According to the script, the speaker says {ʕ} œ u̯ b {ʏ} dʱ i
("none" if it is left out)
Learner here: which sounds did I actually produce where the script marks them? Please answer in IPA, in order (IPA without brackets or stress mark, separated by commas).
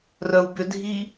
r, ʏ